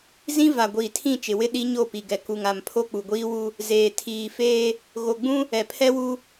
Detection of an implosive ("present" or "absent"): present